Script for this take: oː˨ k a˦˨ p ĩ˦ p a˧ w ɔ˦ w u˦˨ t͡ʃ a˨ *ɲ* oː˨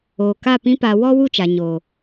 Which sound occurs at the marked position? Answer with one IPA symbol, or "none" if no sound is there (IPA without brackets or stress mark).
ɲ